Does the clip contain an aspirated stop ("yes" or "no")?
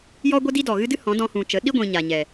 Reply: no